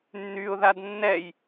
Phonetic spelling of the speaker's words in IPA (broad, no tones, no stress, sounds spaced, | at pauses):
nː y ʊ̯ ð a d nː ɛ j